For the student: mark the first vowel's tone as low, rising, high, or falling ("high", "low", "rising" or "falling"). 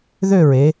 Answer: falling